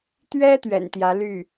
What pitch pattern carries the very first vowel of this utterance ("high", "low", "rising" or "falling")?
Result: high